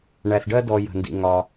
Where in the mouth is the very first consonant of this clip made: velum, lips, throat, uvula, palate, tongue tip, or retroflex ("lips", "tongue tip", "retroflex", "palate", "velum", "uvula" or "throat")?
retroflex